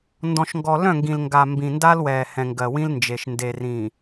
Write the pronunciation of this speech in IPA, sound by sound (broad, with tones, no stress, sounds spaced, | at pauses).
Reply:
n d ɔ̃˨ ʃ ŋ ɡ ɔ˨ l œ̃˦˨ ŋ ɡ ĩ˨ l ŋ ɡ a˨ m b ĩ˨ n d a˦ l w ɛː˨ h ɛ̃˨ ŋ ɡ ɜ˨ w ĩ˦ l n d͡ʒ e˨ ʃ n d e˨ r ĩ˨